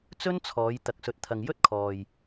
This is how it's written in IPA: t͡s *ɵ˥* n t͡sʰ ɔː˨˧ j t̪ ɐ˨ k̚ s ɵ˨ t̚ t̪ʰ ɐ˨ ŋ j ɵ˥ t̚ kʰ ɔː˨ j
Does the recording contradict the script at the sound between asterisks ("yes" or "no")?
no